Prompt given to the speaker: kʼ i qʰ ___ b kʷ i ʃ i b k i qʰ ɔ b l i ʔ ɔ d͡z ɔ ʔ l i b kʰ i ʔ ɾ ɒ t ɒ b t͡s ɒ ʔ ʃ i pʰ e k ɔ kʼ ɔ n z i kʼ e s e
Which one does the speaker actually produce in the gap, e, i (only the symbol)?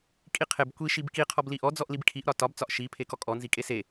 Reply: e